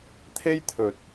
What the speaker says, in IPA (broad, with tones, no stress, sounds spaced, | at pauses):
t̪ʰ e˥ j t̪ʰ ɵ˨ t̚